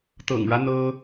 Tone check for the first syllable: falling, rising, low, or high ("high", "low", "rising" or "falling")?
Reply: low